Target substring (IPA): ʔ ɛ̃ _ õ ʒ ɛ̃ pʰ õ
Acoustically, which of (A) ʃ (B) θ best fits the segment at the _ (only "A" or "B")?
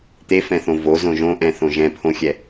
B